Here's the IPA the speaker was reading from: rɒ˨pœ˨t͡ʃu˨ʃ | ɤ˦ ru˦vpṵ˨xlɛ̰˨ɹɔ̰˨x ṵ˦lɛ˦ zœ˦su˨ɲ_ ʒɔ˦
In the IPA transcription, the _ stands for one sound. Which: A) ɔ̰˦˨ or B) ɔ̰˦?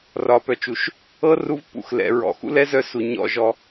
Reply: A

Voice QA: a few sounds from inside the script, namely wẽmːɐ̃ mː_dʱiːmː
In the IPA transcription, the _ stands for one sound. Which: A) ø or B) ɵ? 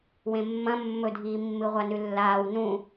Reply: B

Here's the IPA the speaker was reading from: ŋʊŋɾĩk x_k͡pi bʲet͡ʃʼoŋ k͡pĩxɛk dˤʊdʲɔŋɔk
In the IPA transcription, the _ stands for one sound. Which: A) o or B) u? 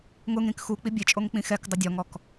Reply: B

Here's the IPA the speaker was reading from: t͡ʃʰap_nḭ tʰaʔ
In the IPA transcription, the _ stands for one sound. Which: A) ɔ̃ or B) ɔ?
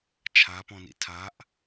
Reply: A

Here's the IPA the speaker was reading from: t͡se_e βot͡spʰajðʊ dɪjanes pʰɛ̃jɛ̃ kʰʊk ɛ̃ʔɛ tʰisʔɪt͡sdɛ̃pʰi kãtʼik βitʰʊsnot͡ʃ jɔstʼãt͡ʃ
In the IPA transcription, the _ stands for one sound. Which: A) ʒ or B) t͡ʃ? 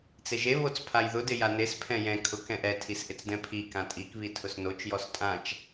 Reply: A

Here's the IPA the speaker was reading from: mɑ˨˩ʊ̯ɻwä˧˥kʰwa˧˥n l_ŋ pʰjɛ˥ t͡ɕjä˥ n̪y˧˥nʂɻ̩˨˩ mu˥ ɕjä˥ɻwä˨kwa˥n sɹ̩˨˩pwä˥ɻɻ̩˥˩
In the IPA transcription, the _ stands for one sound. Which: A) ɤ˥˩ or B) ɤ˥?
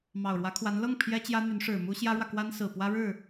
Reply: A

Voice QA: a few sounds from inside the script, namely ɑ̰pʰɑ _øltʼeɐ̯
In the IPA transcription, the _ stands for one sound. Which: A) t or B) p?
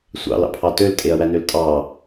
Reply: A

